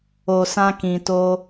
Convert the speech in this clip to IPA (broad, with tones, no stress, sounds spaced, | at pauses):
o˨ s ã˧ k ĩ˨ t o˧